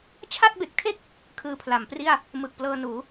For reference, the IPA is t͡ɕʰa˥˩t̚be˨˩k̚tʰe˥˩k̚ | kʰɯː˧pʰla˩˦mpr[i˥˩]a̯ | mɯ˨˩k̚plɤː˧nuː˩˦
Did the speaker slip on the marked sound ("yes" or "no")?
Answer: no